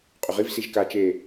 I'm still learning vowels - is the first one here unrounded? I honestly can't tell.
no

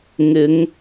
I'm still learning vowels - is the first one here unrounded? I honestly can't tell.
yes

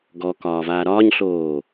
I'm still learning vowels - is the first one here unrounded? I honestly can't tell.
no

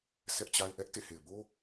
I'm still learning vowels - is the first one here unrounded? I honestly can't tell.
yes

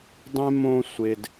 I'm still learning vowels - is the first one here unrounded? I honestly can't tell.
yes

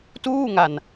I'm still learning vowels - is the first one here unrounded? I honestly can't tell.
no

